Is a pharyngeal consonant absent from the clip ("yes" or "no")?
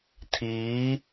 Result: yes